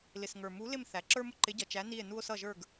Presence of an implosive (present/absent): absent